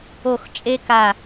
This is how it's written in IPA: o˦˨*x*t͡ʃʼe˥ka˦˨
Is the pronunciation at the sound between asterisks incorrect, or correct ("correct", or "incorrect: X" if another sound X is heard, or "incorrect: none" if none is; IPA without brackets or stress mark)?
correct